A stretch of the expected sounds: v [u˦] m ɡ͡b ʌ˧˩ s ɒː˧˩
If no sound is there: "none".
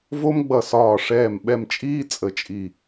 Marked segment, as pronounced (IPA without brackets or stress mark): o˦